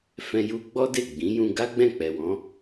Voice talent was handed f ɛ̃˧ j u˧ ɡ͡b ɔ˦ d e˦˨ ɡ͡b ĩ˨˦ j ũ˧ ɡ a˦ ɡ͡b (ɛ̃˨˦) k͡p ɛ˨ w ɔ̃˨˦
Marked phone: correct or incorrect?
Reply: incorrect